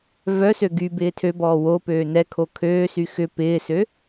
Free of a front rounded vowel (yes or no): no